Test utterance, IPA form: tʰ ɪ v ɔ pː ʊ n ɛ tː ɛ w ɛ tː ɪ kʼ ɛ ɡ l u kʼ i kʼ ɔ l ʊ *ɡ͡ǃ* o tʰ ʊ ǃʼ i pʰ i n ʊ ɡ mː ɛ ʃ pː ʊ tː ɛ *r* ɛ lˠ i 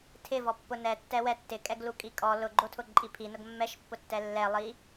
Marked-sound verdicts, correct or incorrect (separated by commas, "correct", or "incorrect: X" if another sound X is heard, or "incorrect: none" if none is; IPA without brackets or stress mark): correct, incorrect: lː